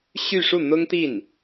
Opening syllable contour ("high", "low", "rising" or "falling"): falling